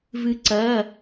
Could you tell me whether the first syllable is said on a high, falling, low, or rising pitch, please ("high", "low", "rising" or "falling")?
rising